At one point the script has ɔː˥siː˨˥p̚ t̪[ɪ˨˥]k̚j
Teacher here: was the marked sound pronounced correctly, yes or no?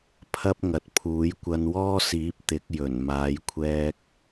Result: yes